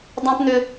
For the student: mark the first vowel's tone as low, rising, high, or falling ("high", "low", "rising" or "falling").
high